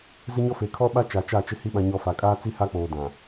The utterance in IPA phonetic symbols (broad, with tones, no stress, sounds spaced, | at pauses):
z ɪ˦ ɲ ɔ˦ f e˨ kʰ ɔ˦ ɓ a˦ t͡ʃ a˨ t͡ʃ a˦˨ t͡ʃ ɪ˦ h i˦ ɓ ã˨ ɲ ɔ˨ f a˨ kʼ aː˦ t͡s i˦ h a˦ k͡p oː˨ d ã˨